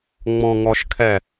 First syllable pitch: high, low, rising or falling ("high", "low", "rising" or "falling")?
low